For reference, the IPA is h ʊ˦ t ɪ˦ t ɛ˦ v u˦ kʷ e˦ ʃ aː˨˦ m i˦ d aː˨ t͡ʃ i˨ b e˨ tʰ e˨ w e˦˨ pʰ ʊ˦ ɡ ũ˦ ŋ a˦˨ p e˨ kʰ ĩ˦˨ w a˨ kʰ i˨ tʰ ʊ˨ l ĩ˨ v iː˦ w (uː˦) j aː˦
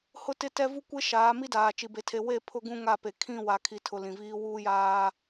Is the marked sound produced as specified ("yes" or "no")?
yes